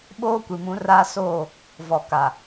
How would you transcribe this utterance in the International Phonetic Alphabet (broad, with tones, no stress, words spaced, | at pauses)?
ɓoː˦kʷi˨mũ˨˦raː˦ soː˦˨ | vɔ˨ka˨